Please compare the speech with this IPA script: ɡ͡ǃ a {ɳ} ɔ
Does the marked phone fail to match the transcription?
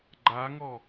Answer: yes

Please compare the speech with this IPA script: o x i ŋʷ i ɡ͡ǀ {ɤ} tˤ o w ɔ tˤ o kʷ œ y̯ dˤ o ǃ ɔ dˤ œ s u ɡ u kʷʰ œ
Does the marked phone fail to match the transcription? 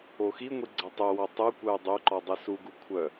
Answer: no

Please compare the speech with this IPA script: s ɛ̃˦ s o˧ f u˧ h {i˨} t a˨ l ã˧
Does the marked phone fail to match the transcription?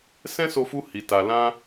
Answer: no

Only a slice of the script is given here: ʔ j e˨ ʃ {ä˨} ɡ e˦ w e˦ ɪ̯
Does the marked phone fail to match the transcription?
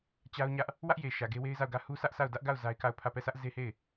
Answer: no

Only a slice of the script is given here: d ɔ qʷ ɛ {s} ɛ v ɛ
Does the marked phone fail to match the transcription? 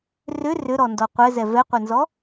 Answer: yes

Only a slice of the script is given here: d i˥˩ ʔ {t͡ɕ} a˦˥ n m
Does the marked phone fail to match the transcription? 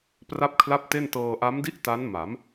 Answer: yes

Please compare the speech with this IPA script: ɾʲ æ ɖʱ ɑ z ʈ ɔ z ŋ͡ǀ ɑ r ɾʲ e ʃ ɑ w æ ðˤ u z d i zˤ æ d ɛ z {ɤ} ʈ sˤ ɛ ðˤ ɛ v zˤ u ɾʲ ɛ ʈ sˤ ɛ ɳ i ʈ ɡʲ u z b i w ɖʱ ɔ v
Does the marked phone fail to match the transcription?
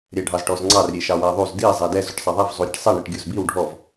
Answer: yes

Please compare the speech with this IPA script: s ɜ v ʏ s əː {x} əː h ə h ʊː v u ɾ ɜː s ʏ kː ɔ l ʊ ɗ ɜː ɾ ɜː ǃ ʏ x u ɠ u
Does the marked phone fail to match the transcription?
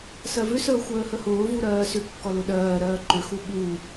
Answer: yes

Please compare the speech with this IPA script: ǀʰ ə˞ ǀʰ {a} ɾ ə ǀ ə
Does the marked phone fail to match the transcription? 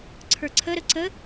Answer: yes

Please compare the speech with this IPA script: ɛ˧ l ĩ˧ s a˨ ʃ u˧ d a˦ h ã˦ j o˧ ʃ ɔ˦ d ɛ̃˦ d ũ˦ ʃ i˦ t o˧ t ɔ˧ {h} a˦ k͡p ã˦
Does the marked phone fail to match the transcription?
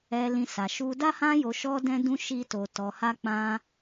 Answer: no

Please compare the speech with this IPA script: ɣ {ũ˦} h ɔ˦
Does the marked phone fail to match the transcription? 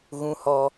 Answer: no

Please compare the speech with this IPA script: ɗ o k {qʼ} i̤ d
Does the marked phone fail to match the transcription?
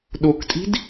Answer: yes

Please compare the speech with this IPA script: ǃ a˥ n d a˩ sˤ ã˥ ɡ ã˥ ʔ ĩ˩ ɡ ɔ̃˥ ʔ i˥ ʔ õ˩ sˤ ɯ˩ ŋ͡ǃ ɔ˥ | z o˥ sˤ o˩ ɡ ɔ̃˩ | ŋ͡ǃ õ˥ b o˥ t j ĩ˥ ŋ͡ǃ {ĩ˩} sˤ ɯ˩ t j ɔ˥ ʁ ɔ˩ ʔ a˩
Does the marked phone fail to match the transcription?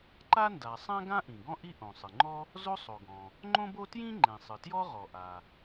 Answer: yes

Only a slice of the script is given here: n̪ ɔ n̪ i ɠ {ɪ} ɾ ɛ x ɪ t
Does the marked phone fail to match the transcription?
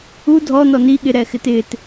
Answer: no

